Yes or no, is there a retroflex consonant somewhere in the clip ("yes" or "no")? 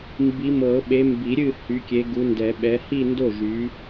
no